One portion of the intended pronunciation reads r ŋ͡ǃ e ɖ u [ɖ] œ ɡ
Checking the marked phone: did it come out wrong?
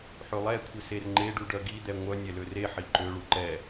no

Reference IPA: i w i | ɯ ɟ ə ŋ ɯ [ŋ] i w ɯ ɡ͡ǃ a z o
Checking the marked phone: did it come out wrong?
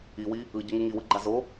no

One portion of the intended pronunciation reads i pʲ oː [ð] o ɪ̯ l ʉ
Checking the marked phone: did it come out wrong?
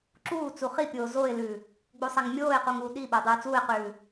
yes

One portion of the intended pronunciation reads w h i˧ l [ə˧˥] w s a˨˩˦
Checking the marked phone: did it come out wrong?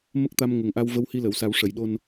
yes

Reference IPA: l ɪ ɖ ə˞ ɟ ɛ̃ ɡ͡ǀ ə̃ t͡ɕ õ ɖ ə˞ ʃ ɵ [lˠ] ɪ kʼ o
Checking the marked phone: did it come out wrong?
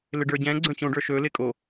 yes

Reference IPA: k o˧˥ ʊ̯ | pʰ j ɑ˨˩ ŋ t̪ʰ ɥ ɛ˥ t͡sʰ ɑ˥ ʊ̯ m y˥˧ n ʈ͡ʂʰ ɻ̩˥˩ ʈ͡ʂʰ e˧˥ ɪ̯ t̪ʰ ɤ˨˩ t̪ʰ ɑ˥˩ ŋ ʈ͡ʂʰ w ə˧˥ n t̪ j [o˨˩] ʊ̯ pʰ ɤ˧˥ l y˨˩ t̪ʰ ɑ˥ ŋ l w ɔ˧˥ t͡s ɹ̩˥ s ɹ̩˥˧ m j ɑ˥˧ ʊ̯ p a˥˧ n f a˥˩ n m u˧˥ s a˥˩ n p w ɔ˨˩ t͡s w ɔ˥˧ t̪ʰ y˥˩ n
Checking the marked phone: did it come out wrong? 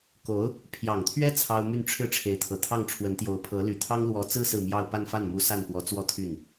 yes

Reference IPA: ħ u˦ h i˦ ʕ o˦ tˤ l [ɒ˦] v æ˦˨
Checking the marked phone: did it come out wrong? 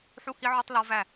no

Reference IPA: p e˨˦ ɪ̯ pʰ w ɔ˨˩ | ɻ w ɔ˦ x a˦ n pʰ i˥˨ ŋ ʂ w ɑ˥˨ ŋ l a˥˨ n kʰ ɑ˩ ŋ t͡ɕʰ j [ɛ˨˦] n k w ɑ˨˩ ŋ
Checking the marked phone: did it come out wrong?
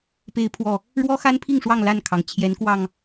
no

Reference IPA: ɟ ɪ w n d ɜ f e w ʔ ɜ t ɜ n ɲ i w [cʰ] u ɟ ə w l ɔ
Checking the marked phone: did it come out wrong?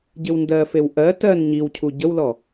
no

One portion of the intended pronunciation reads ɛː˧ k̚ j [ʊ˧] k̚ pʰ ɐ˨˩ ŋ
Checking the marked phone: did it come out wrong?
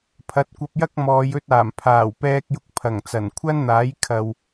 no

